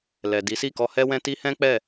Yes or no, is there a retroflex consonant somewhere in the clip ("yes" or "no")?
no